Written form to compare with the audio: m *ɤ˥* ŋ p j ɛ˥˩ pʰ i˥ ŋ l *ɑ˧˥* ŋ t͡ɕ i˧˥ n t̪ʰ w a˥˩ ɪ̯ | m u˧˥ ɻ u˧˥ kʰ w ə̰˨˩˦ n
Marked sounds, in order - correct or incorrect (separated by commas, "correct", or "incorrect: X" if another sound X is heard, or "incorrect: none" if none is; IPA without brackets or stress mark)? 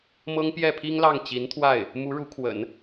correct, incorrect: ɑ˥˩